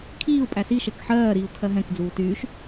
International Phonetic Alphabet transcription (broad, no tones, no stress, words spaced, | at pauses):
kʰiːu̯ pʼæsi ʃɛkħɜːɾiːu̯ kʰɜɦɛ̃k d͡zuːtyːʃ